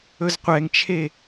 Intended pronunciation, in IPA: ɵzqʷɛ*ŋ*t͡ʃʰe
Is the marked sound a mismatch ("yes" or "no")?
no